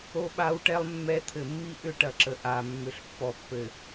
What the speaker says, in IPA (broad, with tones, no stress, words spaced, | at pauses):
o˦ɓa˦wʈɛ˦lˠ mːɛ˦ t̪ʰɘ˨mːi˦ ʔʏ˦ʈɐ˨ǁə˨ ʔa˨ mːʏ˨ɬpːɔ˨pːɘ˨